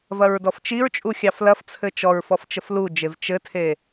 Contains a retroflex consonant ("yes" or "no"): no